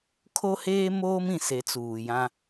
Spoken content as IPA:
kʰ o˦ h eː˦ m oː˦ m ĩ˨ s e˨˦ t͡s uː˨ j ã˦

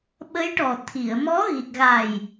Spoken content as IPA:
ɓ ə˧˥ j ʈ ɔ˨˩ t̪ʰ i˨˩˨ ə̯ m ɔ˧˥ ɣ i˨˩ k̚ ɣ a˨˩ j

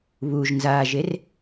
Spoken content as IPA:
β u ʒ n z aː ʒ e r

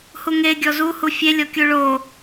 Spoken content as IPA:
h u ŋ e ɡʲ ɔ z u h u fʲ e lʲ ɔ kʲ u ɭ o

